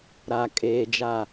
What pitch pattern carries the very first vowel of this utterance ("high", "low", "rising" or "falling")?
low